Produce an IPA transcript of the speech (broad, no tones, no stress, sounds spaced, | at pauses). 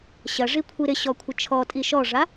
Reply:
ɕ ɐ ʐ i kʷʰ i ɾ ɪ ɕ ɔ kʷʰ ɪ t͡ʃʰ ɔ tʼ i ʃ ɔ ʐ a